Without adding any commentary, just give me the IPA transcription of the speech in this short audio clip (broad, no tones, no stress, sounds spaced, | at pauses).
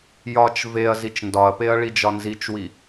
j ɒ t͡ʃ v e ɐ̯ z i t͡ʃ n d ɒ ɐ̯ p e ɐ̯ ɭ i d͡ʒ ɒ n z i t͡ʃ w i